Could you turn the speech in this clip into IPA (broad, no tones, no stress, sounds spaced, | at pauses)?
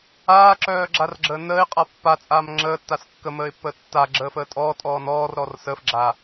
aː ǁ œː ɡ͡ǁ a r ɡ͡ǁ əː n əː ɪ̯ qʼ a pː a t͡sʼ aː m ŋ͡ǁ əː tː a s kː ə m əː ɪ̯ pː əː tː a ɡ͡ǁ əː f əː tʼ ɔː tʼ ɔː n ɔː r ɾ ɔ r s əː f ɡ͡ǁ aː